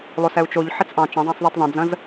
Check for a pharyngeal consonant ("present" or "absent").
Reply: present